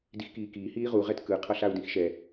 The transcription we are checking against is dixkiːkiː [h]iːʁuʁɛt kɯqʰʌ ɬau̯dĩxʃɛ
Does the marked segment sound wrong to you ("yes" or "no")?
no